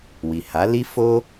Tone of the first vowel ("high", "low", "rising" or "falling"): low